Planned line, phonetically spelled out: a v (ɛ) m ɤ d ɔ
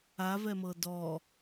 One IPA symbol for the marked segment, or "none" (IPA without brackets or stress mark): ɛ